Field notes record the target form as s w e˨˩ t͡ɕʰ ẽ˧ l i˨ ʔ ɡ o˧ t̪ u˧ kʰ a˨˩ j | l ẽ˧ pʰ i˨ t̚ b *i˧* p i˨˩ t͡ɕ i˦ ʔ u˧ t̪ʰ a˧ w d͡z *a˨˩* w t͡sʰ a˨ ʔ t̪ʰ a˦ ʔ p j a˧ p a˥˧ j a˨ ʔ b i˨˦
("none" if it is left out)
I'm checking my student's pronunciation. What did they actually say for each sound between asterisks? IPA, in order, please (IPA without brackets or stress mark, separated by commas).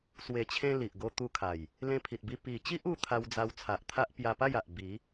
i˧, a˧